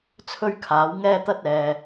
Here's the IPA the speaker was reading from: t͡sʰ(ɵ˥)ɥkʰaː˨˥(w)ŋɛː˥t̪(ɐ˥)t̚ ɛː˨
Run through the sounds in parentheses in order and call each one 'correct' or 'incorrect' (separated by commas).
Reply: correct, correct, correct